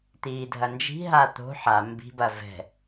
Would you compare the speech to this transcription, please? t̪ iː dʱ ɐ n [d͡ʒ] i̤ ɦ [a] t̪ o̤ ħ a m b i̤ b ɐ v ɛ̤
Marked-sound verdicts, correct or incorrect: correct, correct

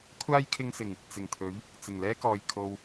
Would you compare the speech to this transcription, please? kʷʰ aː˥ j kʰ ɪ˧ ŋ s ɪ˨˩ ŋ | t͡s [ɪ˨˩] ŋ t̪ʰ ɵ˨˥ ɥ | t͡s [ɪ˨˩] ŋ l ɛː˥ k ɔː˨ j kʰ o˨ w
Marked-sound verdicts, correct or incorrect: correct, correct

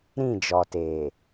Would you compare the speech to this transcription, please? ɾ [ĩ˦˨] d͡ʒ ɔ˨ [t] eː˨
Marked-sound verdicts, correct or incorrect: correct, correct

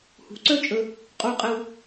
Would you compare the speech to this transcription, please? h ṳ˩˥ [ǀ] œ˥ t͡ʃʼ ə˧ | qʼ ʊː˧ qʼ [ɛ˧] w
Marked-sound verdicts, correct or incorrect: correct, correct

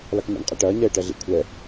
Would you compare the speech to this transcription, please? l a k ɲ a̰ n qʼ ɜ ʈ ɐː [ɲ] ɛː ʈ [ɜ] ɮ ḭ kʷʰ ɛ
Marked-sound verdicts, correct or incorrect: correct, correct

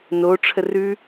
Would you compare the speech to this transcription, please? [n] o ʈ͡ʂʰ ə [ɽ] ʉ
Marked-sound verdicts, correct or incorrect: correct, incorrect: r

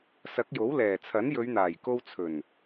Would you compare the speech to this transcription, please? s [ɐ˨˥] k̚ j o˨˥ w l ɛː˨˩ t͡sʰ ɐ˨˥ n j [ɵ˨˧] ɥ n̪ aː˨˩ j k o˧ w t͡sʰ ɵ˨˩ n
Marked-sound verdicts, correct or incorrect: correct, correct

